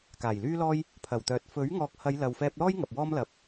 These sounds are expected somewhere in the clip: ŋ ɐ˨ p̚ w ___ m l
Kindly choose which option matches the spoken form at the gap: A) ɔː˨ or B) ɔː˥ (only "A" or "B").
B